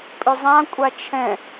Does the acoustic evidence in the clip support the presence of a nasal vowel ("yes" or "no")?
yes